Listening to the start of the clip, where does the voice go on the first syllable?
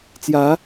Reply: rising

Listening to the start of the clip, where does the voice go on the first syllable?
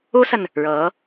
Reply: high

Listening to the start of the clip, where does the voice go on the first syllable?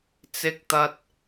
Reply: high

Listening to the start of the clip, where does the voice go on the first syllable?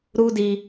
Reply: high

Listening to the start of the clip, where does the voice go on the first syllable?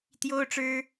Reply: high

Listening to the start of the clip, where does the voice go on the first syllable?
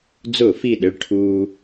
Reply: falling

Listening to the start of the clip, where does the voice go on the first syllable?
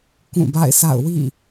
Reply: falling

